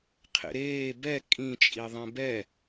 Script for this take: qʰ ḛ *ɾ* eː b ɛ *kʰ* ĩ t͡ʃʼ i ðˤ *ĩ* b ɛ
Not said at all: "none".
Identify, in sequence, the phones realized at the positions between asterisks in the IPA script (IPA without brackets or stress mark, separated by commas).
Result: ɾ, kʼ, ẽ